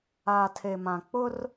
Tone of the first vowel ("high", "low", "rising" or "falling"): low